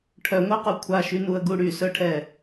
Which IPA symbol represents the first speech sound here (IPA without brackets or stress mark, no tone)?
ʈʰ